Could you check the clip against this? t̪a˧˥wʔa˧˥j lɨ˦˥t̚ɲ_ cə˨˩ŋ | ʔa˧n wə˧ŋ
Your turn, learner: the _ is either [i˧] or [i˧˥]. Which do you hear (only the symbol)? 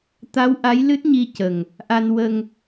i˧